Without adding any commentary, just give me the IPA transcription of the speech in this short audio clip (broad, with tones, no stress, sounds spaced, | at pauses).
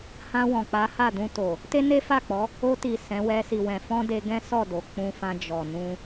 h ã˧ w ɔ̃˨ k͡p a˨˦ h a˦˨ d ũ˧ t o˨ | t e˦ n e˦ f a˦˨ k͡p ɔ˨˦ | o˧ t i˨ s ɛ̃˨˦ w ɛ˧ s i˨ w ɛ̃˨ f ɔ̃˧ d e˧ ɡ ɛ̃˦ s ɔ˦˨ d o˨ k͡p ũ˧ f ã˧ d͡ʒ ɔ˨ n ũ˧